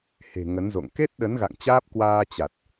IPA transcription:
h e̤˨˩ ŋ ə˨˦ n z o̰˧˨ ŋ k e˦˥ t̚ ɗ ə˨˦ n ɣ a̰˧˨ ŋ t͡ɕ aː˦˥ p̚ k w aː˧ t͡ɕ a˨˩ t̚

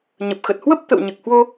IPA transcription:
ɲ ə˨˩ p̚ x ə˨˩ t̚ h w ə˦˥ p̚ t̪ ə̰˧˨ w ɲ ɨ˨˩ k̚ h w o˧

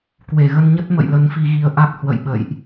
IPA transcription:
k w e˧˩ ɣ ə˧ n ɲ ə˦˥ t̚ m ə̰˧˨ j l ə˨˦ n f i˧ ɣ i˧ ə̯ ʔ a˦˥ k̚ h w ə̰˧˨ j ɓ ə̰˧˨ j ʔ

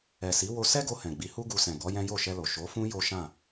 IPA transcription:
ɛ˨ s i˨˦ w o˧ s ɛ˦ ɡ o˧ h ɛ̃˨ ɡ͡b i˨˦ h u˦ ɡ u˧ s ɛ̃˨ ɡ ɔ˨˦ j ɛ̃˦ j o˦˨ ʃ ɛ˧ l o˨ ʃ o˨˦ f ũ˦ j o˦ ʃ ã˦˨

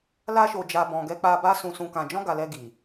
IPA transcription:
l a˦ ʃ o˧ d͡ʒ a˧ b ɔ̃˧ ɡ ɛ˧ k͡p a˧ b a˦ s ũ˧ s ũ˧ k ã˧ d͡ʒ ɔ̃˦ ɡ a˧ l ɛ˧ ɡ i˨

